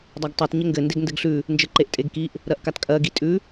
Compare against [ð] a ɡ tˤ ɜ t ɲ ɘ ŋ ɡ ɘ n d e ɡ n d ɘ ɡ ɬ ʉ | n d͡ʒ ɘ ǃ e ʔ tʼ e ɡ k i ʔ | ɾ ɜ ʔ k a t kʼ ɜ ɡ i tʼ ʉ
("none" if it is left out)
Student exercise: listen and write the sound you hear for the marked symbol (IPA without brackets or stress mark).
dˤ